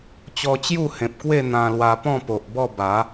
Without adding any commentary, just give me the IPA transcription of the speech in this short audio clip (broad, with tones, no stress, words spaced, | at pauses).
t͡ɕɔ˧t͡ɕju˥˧hẽ˨p̚kwe˥˧ n̪ã˧lwa˧ pɔ̃˥˧po˨ʔbɔ˥˧ba˨˦